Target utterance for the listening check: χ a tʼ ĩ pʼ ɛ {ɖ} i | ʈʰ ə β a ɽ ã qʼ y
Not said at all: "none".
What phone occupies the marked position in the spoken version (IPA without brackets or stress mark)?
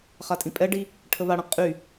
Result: ɖ